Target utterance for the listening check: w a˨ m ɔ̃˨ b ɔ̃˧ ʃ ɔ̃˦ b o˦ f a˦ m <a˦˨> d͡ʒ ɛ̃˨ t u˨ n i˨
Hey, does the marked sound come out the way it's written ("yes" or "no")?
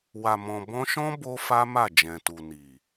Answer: yes